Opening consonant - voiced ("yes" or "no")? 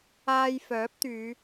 yes